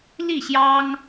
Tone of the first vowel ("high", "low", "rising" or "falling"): falling